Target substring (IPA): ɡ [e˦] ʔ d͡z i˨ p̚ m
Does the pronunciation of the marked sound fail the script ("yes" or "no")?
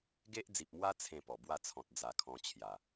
no